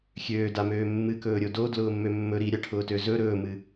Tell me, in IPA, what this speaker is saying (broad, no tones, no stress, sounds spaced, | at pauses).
xʲ øː d a m øː mː ɨ k ɵː ɾʲ o d o d l ʊː mː ø mː ɵ ɾ i ɾʲ a ʈʰ ʊː t ø z ɵ ɾ ɵː m ɨ